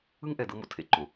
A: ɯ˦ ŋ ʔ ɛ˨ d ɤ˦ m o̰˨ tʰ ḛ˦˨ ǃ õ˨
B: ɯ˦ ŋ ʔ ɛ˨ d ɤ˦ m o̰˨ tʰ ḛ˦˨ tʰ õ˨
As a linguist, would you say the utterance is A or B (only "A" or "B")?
A